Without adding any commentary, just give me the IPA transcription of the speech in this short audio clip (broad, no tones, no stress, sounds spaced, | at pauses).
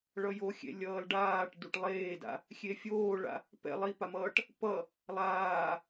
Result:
ɭ ʌ j o xʲ ḛ lʲ ʌː l ɖ aː ʈ d u ʈ lˠ eː d a̰ | xʲ e fʲ oː ɭ a̰ | p ɛ̰ lˠ i p a m ʌː ʈ | p ʌ | lˠ aː